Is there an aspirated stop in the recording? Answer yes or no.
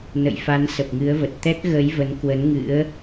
no